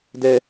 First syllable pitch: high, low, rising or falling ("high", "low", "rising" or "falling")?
low